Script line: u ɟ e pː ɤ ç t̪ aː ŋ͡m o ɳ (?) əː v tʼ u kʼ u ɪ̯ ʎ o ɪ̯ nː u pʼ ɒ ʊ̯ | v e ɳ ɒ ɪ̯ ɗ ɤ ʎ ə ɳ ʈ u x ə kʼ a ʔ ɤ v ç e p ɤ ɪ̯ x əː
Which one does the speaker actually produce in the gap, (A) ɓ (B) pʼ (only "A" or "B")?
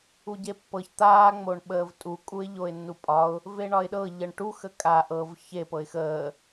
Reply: A